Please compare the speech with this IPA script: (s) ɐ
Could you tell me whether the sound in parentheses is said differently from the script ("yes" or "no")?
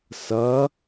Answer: no